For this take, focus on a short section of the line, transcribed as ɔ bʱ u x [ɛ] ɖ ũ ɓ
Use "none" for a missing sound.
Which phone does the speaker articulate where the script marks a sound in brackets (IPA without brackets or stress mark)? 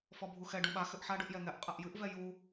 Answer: ɛ